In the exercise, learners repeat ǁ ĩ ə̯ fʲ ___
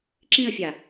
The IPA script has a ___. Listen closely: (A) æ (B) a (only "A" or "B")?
B